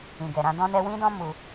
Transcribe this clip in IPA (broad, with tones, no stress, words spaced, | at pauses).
ĩ˨ɡɛ˨ɾã˧ dɔ̃˦nɛ˦ wĩ˦dɔ̃˦ mu˧